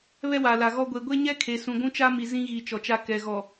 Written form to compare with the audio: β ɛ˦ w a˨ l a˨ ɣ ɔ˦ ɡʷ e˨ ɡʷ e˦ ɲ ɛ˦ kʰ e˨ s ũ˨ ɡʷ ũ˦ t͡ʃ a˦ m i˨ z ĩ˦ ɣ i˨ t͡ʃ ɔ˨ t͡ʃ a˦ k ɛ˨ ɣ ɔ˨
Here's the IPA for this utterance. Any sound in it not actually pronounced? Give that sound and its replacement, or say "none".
none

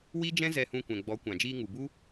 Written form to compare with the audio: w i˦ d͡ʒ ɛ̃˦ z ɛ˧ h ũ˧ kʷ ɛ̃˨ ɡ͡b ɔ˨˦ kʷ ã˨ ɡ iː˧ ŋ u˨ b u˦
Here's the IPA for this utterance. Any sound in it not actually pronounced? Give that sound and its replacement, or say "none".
ɡ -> d͡ʒ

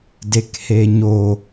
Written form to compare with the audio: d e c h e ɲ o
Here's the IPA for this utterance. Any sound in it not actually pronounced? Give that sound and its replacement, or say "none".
c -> k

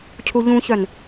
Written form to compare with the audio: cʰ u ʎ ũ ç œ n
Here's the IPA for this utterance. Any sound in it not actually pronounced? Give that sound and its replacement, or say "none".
none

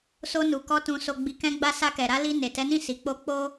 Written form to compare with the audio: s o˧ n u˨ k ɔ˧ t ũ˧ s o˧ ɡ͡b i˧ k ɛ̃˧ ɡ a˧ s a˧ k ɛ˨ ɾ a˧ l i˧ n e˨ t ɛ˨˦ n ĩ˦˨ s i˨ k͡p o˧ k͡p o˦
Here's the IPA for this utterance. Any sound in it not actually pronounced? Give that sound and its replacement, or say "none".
ɡ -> ɡ͡b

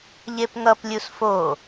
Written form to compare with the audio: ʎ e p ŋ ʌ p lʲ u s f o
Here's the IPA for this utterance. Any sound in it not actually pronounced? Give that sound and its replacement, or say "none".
none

